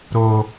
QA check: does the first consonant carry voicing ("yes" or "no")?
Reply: yes